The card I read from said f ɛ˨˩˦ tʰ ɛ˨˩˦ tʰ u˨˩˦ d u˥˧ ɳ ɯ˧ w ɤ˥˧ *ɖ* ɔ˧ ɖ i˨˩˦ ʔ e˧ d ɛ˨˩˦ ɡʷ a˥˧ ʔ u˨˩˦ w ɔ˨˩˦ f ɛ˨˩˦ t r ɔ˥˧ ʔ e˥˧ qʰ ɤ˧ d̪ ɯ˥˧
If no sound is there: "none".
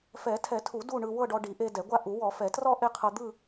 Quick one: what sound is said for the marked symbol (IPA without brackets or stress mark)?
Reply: ɖ